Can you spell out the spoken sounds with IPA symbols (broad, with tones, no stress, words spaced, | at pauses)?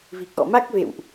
vi˨˩k̚ʔɔ̰˧˨ma˦˥k̚vḛ˧˨wʔ